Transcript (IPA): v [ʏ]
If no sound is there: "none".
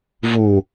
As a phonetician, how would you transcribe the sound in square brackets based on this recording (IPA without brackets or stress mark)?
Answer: u